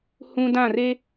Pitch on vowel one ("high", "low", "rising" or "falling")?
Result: high